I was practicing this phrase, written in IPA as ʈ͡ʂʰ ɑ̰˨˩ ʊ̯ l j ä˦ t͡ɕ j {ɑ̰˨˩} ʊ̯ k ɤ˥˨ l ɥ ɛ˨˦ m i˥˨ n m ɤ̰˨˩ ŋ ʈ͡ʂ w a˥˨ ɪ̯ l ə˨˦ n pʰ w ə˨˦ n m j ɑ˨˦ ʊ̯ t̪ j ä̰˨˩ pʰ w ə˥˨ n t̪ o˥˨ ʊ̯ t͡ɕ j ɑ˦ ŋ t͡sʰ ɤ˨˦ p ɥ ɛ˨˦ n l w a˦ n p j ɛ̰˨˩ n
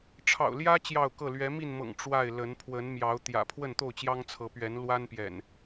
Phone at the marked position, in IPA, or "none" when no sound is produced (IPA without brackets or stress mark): ɑ˥˨